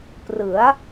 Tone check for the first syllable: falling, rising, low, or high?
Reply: rising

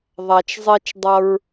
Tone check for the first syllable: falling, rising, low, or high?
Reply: low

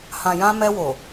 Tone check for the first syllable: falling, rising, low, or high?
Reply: low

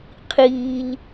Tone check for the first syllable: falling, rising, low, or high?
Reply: low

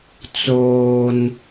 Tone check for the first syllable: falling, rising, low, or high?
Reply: high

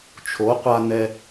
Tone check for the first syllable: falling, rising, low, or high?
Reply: rising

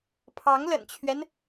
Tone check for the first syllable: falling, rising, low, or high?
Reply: rising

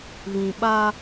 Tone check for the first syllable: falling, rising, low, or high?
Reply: low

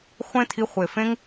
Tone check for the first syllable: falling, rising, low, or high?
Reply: high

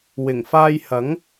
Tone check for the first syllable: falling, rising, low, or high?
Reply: low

